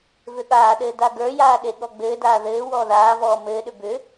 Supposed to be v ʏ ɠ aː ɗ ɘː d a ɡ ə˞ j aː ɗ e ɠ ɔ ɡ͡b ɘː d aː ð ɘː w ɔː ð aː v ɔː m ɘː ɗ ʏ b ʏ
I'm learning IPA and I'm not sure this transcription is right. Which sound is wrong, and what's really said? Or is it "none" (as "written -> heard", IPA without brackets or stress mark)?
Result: none